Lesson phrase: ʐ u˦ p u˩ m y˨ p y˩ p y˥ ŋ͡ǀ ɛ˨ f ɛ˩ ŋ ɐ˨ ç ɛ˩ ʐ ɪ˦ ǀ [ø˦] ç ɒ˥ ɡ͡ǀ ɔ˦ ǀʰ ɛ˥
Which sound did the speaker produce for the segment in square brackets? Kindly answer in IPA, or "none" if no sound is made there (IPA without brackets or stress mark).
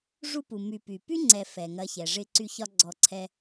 y˦